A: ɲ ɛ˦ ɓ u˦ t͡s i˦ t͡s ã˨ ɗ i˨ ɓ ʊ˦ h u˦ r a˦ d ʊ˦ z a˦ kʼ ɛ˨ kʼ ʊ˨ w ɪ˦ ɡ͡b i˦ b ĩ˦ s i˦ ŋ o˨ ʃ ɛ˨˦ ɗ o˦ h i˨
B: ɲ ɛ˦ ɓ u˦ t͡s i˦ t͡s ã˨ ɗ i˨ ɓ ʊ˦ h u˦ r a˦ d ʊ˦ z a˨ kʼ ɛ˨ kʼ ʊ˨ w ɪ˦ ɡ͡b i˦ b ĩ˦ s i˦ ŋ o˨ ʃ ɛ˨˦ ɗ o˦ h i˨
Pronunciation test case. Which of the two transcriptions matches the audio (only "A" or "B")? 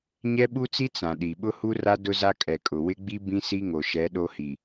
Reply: A